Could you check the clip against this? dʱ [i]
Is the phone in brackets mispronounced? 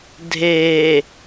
yes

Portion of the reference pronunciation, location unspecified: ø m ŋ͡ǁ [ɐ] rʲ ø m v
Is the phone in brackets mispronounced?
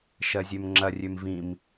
no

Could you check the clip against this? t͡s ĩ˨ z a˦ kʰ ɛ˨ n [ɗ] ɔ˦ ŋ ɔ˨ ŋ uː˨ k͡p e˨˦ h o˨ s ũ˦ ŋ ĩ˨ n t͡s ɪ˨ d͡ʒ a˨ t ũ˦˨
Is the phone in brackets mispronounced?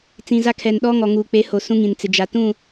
no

